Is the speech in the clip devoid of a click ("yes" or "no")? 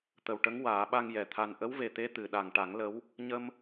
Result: yes